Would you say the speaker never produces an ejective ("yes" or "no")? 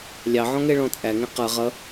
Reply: no